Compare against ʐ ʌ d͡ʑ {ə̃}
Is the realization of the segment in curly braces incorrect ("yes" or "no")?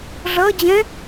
yes